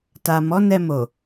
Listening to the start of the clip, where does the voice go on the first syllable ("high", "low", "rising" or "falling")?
low